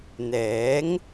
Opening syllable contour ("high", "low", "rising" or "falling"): rising